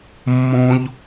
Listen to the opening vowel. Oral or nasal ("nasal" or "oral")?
nasal